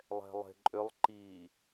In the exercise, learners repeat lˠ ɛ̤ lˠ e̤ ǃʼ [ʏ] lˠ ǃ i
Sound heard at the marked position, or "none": ʏ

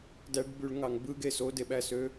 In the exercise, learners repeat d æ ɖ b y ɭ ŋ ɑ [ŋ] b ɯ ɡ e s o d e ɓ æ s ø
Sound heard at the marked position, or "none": ŋ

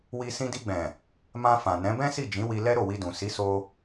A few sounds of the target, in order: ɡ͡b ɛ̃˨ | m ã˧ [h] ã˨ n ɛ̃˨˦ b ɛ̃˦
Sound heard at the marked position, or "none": f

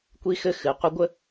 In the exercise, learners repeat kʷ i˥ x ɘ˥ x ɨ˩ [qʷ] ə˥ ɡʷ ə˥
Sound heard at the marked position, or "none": qʷ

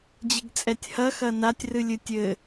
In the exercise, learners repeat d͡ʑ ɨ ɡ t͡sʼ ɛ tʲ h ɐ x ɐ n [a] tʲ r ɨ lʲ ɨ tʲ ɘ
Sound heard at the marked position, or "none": a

